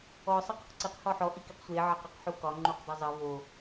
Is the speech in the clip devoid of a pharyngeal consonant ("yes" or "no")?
no